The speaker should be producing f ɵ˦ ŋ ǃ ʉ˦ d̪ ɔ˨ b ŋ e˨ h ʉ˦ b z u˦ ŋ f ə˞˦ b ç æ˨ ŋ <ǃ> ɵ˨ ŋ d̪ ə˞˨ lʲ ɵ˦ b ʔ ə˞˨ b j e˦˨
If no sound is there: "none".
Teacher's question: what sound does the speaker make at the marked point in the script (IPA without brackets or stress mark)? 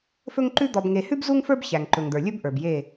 ǃ